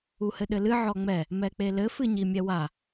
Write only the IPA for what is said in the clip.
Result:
u h ɘ ɗ ɘ l ɨ ʕ ɔ ŋ͡m ɛ | m ɛ k͡p e l ɘ f ɨ ɲ i mʲ ɛ w a

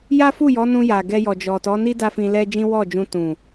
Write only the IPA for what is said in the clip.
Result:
j a˦ f u˦˨ j ɔ˨˦ n ũ˧ j a˨ ɡ ɛ˧ j ɔ˨ d͡ʒ ɔ˨ t ɔ˨˦ n i˦ d a˦ f ĩ˧ l ɛ˦ d͡ʒ ĩ˦ w ɔ˦˨ d͡ʒ ũ˧ t ũ˨

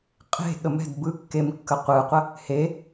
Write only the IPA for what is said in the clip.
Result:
qʼ e̤ ɠ ə m ɛ̤ d b ɯ kː e m kː ə qʷ ɯ qʷ ə | h e

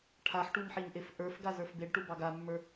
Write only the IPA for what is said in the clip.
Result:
ʈʰ a ħ ʈ u ɲ ħ i ɲ ʔ e f ʔ ə˞ f ɡ a z ə˞ f b e ɖ ʈ u b ɑ ɡ a mː ə˞

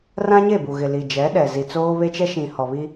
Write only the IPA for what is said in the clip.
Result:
r ã˦ ɲ e˦˨ b u˨ ɣ ɪ˨ l i˨ d͡ʒ ɛ˨˦ ɗ ɛ˨ z i˨ t͡s oː˦ β e˦ t͡ʃ ɛ˦ ʃ ĩ˨ h ɔ˨ β i˦

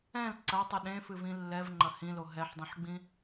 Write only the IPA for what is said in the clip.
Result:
ɛ̃ l ǀ ɐ tˤ ɨ ɗ ẽ f ɨ v ĩ lː ɛ v ŋ͡ǃ ɐ h ĩ l o ɦ ɛ ħ dˤ ĩ ħ ɡ͡b ĩ

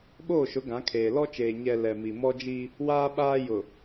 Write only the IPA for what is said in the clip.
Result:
ɓ oː˦˨ ʃ ʊ˨˦ ɡ ã˨˦ kʰ eː˨ l ɔ˦ t͡ʃ eː˨ ɲ ɛ˨ l ɛ˨ m i˨ m ɔ˦ d͡ʒ i˦ | w aː˦ ɓ aː˦ j ʊ˨

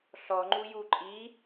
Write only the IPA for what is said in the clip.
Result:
ɬ ɔ ŋ͡ǃ u j u ǃʼ i

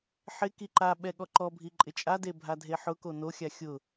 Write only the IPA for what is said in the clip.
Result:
ħ ɪ k i ǃ a ɓ ɛ ɠ ɔ ǃ ɔ bʱ i ǃʼ ɪ t͡ʃʼ a d e bʱ a dʱ e ħ ʊ k o n o xʲ a xʲ ʊ

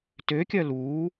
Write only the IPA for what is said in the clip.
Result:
t ø kʲ œ l uː

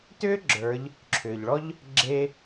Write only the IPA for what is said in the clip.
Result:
t ʏː˥ ɡ͡ǁ ə˞˩˧ ʎ | ǁʰ ʏː˩ ʎ ɭ ɔ˥ ʎ | ɡ͡ǁ e˧

